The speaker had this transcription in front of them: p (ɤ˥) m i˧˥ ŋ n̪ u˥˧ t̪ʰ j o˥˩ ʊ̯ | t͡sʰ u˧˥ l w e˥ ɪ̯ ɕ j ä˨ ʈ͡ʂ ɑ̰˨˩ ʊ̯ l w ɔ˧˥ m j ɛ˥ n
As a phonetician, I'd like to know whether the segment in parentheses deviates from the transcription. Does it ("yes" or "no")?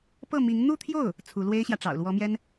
yes